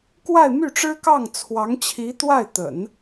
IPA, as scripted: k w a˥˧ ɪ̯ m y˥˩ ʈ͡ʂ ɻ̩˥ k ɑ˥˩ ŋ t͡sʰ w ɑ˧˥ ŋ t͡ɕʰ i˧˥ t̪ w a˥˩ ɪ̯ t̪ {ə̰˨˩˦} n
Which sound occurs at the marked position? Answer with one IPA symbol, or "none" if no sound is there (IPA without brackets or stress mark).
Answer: ə̰˨˩˦